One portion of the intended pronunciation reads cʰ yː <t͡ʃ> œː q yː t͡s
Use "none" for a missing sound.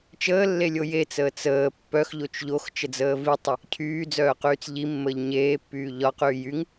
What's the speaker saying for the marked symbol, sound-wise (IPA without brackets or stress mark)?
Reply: d͡z